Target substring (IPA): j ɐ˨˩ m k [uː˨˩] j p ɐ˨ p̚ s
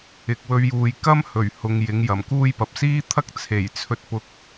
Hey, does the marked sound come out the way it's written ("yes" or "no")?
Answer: no